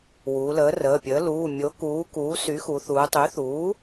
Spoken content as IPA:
wuː˩˧ləː˩˥rəː˩˧˩pʲəː˩˥ luː˩˧˩ mʲo˩˧kuː˩˧ kuː˩˥sy˩˥xu˩˧θuː˩˧ tˤy˩˥θuː˩˥

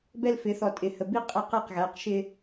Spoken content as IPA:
bɛ˦lfɪ˨˦ θɔ˨tʼɪ˨hə˨ bi˦qʼɛ˦˨qæ˦qɣæ˨˦q ʃɪ˦

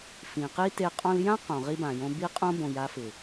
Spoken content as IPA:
fĩ˨qi˦te˧ qʼɔ̃˧ljã˦ qõ˨ʁi˦bã˨jõ˦ bi˦qʼõ˦ bõ˨ja˧fɪ˨

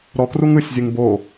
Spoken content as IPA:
ɾɔkruŋ ɯsʲzʲɯŋ bo

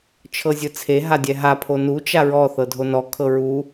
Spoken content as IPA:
t͡ʃʰɤzʲɯt͡sʰe ɦadʲɛɦa pʰonu t͡ʃaɹɔ θɤdʱonɔ kʰɤɹu

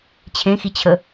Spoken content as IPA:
t͡ɕʰẽxit͡ɕʰə

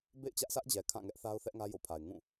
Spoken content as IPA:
bḛ˦˨ɪ̯t͡ɕä˦ʔsä˦ʔd͡ʑɛ˨ kʰã˦˨ŋɛ˦ʔ θa˦ʊ̯θɛ˦ʔŋä˦ jo̰˦˨pʰa˨ɪ̯ ŋũ˦˨

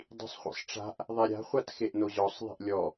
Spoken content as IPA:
dˤi̤sˤχʷḭsˤʈ͡ʂa̤ʔ | ðˤɛɾʲa̤ χʷatxeʔnoʑɔsˤ ðˤi̤ʔlʲɔ

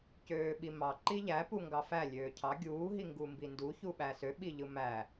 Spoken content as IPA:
cøːɓimɑ ǃiʎæ puŋɡɑfæ lʲøːcʰɑ ɡʲuː ɦiŋɡumbindu çuɓæsø ɓiʎɯmæ

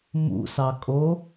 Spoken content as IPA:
mṵsɑkʼo

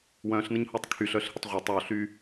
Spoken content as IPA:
wœ̃ɬnəɲhotˤ kʰyɬœɬhɪtˤ ʁʷœtˤ oɬy

